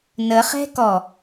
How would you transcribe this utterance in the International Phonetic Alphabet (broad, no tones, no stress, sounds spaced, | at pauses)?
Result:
n ə χ ɛ̤ k ɔ